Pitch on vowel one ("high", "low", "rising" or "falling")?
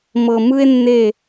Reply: low